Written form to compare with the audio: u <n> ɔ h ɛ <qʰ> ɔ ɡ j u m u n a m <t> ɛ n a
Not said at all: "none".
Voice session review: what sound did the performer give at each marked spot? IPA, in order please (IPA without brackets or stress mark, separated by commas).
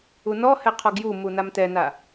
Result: n, qʰ, t